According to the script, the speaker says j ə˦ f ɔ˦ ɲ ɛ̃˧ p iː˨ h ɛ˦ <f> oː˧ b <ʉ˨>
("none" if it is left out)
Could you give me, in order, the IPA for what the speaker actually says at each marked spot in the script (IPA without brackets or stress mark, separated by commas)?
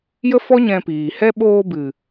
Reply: ɓ, ɨ˨